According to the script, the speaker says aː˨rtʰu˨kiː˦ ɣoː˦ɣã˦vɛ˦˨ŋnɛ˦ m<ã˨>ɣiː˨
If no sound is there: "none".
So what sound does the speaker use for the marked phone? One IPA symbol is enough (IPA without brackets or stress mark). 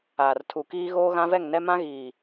ã˦